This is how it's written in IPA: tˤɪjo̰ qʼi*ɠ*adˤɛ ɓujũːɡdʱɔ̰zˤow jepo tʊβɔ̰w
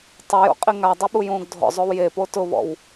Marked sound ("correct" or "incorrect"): incorrect